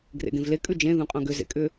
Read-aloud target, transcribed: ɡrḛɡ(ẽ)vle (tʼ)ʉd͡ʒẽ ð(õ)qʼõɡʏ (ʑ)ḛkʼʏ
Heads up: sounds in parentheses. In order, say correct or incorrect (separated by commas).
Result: correct, incorrect, incorrect, incorrect